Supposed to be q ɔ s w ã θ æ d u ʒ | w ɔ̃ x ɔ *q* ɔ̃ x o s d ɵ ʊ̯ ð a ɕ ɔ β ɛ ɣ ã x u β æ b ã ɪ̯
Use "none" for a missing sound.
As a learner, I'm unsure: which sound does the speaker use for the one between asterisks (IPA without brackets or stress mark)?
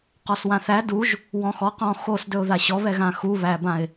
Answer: q